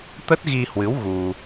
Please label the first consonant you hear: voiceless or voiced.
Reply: voiceless